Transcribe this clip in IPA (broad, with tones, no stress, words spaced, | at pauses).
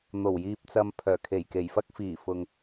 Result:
n̪o˨˩wjiː˨p̚t͡sɐ˨m pʰœː˨˩kʰe˨˩j ke˨˩jfɐ˧k̚ fiː˨˩fʊ˨ŋ